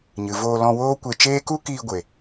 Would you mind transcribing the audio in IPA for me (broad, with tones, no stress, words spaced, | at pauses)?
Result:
ɲɨ˨voː˧ lɔ̃˧ woː˦kʷe˧t͡ʃeː˦ ku˦kiː˧ ɡʷe˨